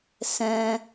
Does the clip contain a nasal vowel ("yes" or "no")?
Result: yes